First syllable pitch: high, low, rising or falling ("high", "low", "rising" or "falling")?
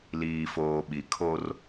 low